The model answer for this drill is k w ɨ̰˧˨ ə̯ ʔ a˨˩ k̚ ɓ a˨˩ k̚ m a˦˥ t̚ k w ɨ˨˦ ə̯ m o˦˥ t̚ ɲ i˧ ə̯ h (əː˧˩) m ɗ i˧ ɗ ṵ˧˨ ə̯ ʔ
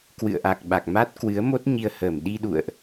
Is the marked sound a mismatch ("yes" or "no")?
no